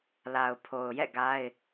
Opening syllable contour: low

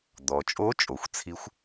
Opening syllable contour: low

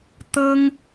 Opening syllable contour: high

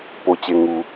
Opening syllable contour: low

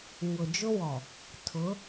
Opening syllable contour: low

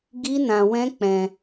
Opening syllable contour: high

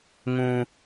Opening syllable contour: high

